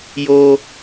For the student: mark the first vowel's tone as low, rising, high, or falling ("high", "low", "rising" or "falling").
high